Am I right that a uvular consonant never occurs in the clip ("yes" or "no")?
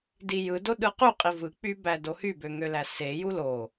no